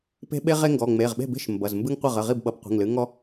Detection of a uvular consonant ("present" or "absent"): present